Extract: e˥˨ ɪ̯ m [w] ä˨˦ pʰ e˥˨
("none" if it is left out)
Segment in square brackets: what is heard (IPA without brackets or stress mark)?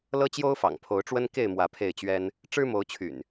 w